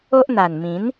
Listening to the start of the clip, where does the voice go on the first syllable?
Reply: high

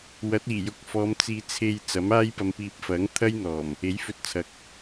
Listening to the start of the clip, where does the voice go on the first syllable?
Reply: rising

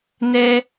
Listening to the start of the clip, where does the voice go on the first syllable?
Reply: high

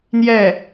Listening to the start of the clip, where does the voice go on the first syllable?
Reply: falling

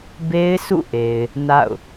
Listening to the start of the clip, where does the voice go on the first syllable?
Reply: high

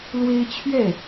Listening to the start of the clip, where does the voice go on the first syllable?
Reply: high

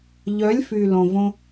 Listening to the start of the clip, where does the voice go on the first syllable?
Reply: rising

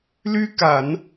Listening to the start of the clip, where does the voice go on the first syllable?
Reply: high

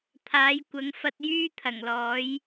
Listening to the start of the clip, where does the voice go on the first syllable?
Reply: rising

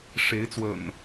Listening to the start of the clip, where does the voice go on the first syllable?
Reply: rising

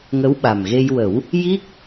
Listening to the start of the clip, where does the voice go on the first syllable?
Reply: rising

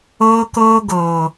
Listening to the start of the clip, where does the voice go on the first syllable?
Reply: high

